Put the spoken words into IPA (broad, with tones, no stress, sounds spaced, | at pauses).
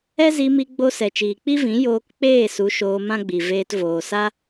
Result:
ɛ˦ z i˧ m i˧ ɡ͡b o˧ s ɛ˨ t͡ʃ iː˨ k͡p i˦ v ĩ˨˦ j oː˧ k k͡p eː˦˨ s u˨˦ ʃ oː˧ m ã˦ ɡ͡b i˨ v eː˧ t v oː˨ s a˦